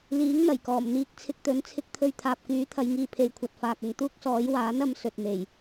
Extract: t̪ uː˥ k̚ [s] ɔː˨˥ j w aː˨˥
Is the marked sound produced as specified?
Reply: yes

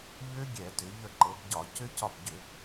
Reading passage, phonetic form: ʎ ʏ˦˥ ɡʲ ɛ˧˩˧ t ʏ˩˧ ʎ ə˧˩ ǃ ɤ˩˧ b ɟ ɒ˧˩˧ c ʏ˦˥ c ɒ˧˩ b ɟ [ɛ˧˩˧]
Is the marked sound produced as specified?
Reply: no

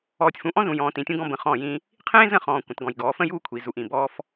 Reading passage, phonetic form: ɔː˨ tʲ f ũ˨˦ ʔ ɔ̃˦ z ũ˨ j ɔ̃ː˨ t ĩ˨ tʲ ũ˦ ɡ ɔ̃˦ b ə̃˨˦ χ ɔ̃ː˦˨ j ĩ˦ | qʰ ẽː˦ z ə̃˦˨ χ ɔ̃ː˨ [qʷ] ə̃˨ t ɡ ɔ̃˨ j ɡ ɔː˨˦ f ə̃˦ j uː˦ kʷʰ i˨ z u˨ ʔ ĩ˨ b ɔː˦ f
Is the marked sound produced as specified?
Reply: no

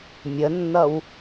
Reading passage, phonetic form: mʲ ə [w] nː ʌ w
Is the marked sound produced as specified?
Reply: no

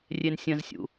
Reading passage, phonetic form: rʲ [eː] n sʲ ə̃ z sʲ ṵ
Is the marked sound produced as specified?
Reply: no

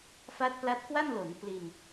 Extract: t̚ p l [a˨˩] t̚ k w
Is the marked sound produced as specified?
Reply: no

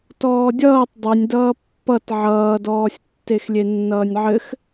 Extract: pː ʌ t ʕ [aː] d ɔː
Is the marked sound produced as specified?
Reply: no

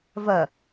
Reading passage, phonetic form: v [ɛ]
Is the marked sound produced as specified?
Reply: no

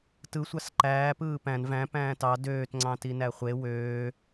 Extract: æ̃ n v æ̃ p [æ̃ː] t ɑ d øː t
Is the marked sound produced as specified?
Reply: yes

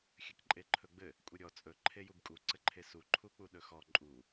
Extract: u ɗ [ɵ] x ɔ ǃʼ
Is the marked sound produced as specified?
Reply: yes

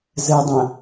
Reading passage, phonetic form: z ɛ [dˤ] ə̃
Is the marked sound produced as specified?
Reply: yes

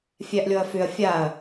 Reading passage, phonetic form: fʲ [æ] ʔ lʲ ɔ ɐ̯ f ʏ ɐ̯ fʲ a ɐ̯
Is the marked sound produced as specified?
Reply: yes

